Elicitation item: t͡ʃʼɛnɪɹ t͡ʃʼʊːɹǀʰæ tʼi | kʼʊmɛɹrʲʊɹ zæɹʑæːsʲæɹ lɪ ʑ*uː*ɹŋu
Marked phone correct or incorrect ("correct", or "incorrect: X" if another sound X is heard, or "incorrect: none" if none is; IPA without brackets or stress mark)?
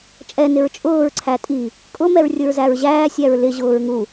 incorrect: ʊː